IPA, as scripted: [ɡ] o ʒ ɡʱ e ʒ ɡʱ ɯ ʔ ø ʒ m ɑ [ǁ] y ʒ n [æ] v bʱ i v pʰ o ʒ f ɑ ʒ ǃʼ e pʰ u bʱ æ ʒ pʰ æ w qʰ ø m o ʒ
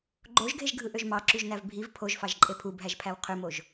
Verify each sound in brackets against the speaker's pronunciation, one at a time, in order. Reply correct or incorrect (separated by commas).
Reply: incorrect, correct, correct